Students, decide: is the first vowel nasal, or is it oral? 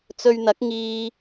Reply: oral